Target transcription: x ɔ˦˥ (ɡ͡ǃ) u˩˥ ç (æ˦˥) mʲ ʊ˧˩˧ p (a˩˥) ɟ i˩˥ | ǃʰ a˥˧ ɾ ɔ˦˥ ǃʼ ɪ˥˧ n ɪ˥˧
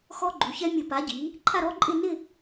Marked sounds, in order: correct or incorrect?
correct, incorrect, correct

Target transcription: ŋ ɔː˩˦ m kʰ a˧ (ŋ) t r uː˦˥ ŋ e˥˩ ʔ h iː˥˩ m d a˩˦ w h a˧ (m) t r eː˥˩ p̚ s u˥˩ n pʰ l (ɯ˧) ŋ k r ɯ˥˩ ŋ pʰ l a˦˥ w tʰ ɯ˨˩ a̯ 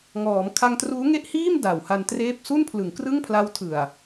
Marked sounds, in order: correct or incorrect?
correct, incorrect, incorrect

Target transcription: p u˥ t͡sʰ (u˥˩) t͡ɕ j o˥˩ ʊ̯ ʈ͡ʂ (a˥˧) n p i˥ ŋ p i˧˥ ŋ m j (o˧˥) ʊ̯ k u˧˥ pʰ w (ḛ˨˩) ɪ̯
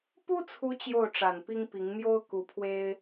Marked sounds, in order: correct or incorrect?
incorrect, incorrect, incorrect, incorrect

